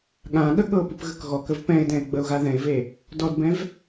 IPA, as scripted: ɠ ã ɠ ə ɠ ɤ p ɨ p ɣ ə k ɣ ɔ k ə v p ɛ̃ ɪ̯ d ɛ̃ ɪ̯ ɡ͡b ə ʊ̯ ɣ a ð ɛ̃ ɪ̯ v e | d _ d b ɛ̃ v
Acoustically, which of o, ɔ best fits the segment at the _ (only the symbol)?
ɔ